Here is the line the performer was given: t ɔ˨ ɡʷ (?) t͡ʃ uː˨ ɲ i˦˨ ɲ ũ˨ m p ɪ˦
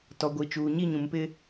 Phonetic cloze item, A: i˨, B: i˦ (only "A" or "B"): A